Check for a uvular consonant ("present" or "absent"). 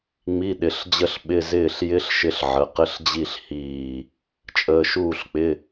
present